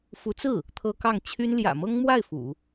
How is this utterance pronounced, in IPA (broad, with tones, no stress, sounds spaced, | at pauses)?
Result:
f u˧˥ t͡s ɹ̩˥˩ | t̪ʰ ɤ˥ k ɑ˥˩ ŋ t͡ɕʰ y˥ n l j ä̰˨˩ m ɤ˥ ŋ m w a˥˩ ɪ̯ f ṵ˨˩˦